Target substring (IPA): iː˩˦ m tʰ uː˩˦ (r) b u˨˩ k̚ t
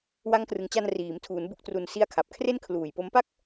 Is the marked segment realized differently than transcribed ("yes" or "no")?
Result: yes